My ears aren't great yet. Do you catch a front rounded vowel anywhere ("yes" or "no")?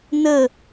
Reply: no